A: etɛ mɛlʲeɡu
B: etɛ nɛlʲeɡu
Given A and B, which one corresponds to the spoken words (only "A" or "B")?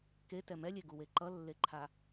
A